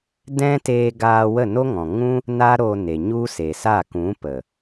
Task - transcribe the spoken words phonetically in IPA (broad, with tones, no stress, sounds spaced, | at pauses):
d ɛ̃˦ t eː˧ ɡ aː˧ w ə˦˨ n o˦ ŋ ɔ̃˨ ŋ ũ˦ | n a˦ ɾ o˧ n e˨ ɲ u˦ s e˨ s a˦˨ k ũ˨˦ p ə˨